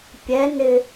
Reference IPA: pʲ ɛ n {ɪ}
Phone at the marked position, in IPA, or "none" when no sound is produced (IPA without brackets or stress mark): ɪ